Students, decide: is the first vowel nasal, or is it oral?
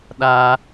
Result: oral